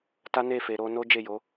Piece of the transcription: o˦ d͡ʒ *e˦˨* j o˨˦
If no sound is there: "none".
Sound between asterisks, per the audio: e˦˨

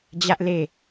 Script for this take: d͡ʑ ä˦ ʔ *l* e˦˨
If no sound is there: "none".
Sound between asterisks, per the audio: l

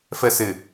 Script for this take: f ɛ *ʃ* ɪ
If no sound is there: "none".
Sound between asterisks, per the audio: s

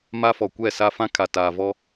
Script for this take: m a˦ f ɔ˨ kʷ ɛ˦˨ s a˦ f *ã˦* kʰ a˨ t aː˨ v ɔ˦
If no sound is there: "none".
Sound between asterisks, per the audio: ã˦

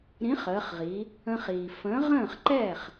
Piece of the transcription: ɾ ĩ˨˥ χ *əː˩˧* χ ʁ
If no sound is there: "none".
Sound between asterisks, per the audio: əː˩˧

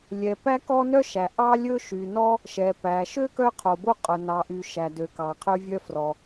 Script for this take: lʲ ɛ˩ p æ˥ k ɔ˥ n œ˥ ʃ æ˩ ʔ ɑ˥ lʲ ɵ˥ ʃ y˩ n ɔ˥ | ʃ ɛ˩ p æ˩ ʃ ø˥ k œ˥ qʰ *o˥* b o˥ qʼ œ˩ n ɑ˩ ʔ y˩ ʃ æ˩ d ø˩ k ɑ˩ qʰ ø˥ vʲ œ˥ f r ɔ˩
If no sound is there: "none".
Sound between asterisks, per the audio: o˩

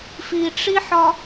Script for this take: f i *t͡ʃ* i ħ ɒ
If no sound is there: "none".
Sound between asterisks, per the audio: ʈ͡ʂ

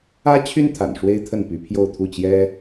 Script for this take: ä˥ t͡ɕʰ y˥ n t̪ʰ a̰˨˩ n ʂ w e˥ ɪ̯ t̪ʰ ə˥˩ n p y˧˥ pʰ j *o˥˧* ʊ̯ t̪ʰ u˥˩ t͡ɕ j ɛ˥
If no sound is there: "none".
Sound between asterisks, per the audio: o˥˧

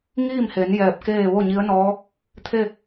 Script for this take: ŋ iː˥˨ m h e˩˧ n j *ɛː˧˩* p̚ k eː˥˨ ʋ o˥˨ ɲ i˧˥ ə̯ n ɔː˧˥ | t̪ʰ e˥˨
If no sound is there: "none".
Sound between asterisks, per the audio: ɛː˧˩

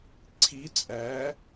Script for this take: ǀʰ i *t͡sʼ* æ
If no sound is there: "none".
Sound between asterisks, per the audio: t͡sʼ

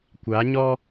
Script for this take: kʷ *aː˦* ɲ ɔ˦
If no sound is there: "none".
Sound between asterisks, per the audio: aː˨˦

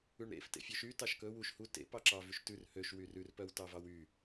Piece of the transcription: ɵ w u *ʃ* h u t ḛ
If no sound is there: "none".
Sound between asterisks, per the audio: ʃ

